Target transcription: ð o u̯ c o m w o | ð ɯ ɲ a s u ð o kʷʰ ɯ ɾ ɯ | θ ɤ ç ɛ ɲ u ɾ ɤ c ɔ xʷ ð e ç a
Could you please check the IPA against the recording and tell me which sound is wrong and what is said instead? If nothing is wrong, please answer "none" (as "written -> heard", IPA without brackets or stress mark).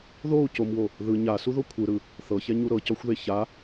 none